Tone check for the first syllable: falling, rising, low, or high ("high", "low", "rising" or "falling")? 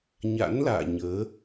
rising